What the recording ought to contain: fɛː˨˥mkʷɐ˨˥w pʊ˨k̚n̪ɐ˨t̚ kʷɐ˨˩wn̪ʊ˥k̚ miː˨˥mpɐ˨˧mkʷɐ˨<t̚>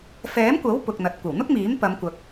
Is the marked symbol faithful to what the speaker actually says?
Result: no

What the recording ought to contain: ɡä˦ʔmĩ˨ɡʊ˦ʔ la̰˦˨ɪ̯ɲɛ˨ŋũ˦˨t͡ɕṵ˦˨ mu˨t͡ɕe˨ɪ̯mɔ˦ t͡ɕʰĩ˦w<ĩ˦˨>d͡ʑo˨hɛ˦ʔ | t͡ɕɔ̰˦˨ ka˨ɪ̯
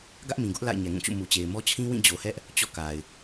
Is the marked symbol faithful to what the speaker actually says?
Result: yes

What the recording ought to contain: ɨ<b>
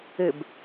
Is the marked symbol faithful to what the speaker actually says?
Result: yes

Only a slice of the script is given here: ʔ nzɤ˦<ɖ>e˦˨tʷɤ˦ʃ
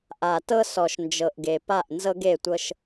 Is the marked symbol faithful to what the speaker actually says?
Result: no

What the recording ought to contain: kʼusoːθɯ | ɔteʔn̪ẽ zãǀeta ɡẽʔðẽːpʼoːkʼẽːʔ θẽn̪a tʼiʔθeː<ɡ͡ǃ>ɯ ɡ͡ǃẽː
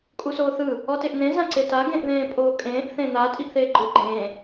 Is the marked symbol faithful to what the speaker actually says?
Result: yes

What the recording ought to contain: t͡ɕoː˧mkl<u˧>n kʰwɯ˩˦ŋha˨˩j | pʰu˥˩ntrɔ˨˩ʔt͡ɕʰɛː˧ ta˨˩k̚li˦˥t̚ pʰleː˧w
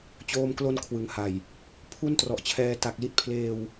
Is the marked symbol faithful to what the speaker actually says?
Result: no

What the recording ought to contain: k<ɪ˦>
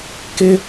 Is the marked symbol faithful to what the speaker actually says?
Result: yes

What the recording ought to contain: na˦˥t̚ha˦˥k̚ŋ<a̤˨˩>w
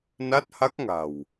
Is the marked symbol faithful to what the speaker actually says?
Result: yes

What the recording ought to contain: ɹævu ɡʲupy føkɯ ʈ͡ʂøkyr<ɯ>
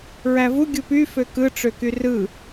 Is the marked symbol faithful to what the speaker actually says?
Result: yes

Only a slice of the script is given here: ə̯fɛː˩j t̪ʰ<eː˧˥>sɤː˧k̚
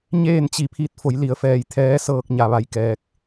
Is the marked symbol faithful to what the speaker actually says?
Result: no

